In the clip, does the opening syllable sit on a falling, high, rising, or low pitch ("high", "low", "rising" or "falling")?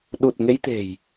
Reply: low